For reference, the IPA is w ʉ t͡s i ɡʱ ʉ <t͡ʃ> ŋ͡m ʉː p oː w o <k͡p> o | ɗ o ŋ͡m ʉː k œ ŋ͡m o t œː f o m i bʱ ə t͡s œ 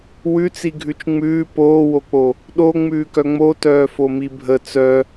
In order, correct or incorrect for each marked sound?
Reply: correct, correct

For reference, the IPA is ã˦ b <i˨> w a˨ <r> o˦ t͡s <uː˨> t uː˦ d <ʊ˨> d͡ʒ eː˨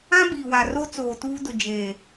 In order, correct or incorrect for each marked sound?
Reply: correct, correct, incorrect, correct

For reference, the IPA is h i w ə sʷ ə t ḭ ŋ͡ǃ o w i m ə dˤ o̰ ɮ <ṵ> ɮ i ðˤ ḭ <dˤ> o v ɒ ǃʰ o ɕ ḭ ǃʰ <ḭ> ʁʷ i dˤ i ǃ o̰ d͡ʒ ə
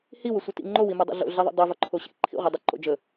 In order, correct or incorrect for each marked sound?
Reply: incorrect, correct, correct

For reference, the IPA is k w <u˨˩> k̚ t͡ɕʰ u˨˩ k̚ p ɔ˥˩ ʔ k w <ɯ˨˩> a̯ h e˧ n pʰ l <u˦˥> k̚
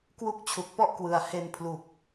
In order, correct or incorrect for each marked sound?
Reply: incorrect, correct, incorrect

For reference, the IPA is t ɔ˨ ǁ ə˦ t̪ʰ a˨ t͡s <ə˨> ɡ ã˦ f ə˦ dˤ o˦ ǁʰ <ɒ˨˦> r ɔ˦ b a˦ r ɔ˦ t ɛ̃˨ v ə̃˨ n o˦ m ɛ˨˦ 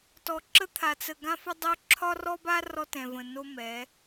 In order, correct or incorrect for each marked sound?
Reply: correct, incorrect

